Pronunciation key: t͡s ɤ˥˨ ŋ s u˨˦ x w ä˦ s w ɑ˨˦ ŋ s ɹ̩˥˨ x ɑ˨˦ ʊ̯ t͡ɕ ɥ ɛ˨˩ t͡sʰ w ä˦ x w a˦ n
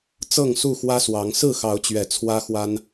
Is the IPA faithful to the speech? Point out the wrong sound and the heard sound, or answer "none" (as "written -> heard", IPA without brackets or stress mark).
u˨˦ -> u˥˨